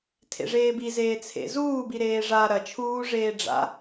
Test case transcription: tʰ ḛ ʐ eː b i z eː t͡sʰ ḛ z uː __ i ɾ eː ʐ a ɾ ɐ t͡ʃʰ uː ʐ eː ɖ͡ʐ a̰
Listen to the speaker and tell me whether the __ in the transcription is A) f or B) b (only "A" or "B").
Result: B